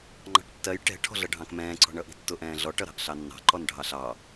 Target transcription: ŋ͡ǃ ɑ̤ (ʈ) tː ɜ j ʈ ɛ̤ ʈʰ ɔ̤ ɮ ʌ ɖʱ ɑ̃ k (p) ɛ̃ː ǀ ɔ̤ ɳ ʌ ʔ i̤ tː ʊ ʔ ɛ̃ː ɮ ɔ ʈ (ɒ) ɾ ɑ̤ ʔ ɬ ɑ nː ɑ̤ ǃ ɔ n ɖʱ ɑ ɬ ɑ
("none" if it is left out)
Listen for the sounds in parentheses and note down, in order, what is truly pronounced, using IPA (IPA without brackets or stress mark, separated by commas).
ʈ, m, ʌ